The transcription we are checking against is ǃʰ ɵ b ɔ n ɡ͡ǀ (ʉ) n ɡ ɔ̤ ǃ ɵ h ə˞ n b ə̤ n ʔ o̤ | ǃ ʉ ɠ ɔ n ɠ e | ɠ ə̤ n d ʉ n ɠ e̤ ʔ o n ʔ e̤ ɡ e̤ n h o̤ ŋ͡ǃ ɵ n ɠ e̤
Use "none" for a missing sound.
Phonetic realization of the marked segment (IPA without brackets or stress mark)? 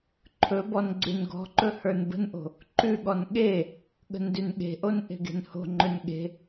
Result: ʉ